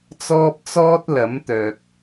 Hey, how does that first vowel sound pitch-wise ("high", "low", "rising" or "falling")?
high